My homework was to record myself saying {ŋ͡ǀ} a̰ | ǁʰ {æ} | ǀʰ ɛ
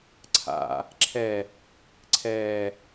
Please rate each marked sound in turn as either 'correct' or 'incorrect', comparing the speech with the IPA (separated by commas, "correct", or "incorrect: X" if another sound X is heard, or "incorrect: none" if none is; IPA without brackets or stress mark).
incorrect: ǀʰ, incorrect: ɛ